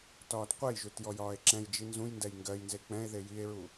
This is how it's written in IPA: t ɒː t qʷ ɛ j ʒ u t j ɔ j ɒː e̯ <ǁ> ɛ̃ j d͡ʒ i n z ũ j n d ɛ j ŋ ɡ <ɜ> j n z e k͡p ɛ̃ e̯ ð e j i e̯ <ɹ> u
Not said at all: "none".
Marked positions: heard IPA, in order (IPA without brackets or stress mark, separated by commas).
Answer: ǁ, ɜ, ɹ